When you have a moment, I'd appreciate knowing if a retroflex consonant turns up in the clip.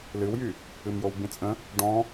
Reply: yes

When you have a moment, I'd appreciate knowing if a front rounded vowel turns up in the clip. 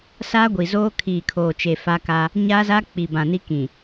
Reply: no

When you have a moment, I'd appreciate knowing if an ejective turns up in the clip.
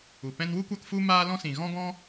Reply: no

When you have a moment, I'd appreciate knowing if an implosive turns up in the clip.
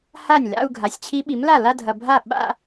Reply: yes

